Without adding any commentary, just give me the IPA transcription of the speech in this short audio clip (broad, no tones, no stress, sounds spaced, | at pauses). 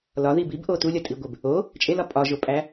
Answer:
l ɒ ð i b i b ʔ o t u lʲ ɒ tʼ i ɡʷ e b | o | t͡ʃʼ e l ɒ pʼ ɒ ʒ o pʼ æ